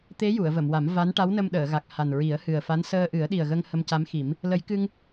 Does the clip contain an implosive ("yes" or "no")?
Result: yes